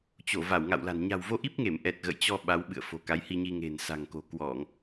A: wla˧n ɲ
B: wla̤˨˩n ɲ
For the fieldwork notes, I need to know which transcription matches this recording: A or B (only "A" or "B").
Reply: B